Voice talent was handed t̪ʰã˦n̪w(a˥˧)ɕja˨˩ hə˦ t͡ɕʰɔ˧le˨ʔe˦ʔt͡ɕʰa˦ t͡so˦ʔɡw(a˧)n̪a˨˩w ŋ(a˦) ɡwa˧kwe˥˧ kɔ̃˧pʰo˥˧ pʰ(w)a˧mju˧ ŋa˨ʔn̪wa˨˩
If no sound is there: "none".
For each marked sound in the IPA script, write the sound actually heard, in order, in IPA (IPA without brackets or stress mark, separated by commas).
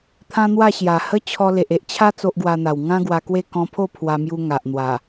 a˥˧, a˧, ã˦, w